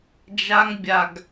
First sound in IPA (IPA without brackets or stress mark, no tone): d͡ʒ